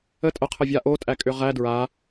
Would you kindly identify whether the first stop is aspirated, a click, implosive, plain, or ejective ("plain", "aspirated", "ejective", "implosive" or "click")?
ejective